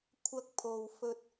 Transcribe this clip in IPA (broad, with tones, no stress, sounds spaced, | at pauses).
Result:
kʷʰ ɐ˥ k̚ pʰ o˧ w f ɵ˧ t̚